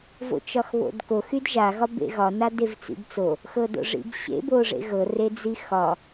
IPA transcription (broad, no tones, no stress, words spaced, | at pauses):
vo̰t͡ʃɒxβo̰dkox ydʒa ɣɒbḛɣɒ nadevt͡sḭbt͡so | xɤdo̰ʐḭbɕḛ boʐḛɣɤ red͡zixɒ